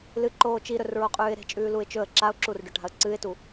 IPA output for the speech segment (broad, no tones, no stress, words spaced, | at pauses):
lɨǃoː t͡ʃiɾɵrɹoqʼʉːɪ̯ ɾe̤t͡ʃʼʉː luɪ̯t͡ʃɵə̯ ǁaʊ̯ǁurɖɵ ʈa̤ə̯ǀɨɪ̯tu